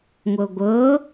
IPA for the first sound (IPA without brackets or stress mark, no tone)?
ŋʷ